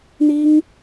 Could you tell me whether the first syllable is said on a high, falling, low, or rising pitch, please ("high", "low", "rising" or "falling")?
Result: high